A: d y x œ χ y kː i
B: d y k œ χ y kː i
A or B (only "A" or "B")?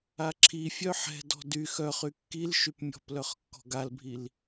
A